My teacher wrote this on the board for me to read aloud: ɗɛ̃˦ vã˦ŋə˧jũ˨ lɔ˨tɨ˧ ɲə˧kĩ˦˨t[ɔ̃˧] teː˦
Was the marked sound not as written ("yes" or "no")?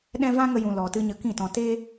no